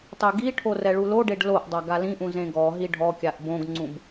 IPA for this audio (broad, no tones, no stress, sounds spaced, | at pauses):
tˤ e ɡ i ʈʰ o r ɛ ɭ u l o ɖ e ɖ l o ʔ dˤ a ɡ a l ĩ ʔ ũ z ẽ ɡ ɔ ɦ i ɖʱ ɔ kʲ a ʔ b õ ɡ ŋ͡ǀ ũ b